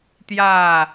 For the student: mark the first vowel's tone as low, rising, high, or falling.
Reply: falling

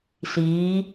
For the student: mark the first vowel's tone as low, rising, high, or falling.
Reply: rising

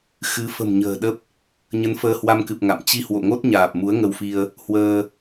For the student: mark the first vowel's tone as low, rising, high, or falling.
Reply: rising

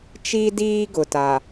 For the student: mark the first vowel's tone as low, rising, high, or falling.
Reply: high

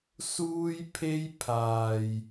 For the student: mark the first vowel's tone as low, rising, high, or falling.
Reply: high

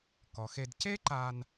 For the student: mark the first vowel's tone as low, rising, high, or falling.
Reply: low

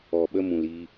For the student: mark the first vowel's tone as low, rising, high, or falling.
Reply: low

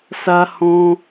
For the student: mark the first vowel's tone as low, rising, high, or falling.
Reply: high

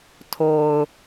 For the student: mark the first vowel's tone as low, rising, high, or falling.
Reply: low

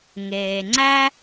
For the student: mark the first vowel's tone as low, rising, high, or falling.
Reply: low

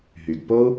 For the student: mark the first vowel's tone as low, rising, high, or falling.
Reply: low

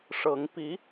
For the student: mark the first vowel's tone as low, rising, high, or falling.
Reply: rising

